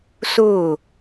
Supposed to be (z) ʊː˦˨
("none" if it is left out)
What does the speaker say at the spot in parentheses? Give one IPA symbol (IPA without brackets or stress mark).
s